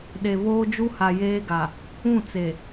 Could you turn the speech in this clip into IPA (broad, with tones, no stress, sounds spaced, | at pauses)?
ɗ e˨ β oː˦ d͡ʒ u˦ h a˨ j eː˦ ɡ a˨ | ũ˦˨ t͡s e˨